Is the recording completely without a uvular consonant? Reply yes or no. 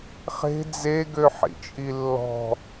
no